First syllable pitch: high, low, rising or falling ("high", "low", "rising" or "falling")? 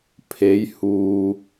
rising